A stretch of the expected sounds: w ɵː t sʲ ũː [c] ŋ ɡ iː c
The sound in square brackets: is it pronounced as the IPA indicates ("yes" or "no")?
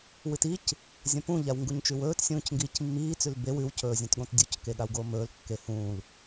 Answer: yes